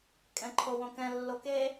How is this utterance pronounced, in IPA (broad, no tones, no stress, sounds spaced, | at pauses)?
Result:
kʼ ɛ̃ ǃʰ o w õ k ɛ̃ lː o k e